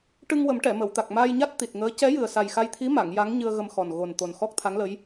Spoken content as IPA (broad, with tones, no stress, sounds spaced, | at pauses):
ʈ ɨ˧ ŋ w ə˨˩˦ m ʈ ɛ˨˩˨ m ə˨˩˨ w t̪ a˨˩ k̚ m aː˧ j ɲ a˦˥ t̚ t̪ i˨˩ t̚ ŋ əː˧˥ c ɛ˧˥ j ɨ˨˩ ə̯ s a˨˩ j x a˧ j t̪ʰ i˧˥ m a˨˩˨ ŋ j a˧˥ ŋ ɲ ɨ˧ ə̯ ɣ ə˧ m x ɔ˨˩ n ɣ o˨˩ n t̪ o˨˩ n x ɔ˦˥ k̚ t̪ʰ a˧˥ ŋ l ə˧˥ j